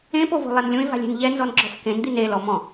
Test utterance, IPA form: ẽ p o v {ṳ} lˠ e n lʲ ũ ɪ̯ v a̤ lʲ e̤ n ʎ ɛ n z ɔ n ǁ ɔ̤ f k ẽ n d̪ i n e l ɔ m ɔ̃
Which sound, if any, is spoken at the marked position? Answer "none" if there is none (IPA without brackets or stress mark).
o̤